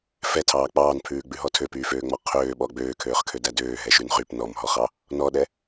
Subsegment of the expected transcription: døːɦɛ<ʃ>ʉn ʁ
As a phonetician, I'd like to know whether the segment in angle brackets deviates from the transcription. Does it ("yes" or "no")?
no